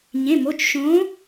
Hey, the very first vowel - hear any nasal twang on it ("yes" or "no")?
yes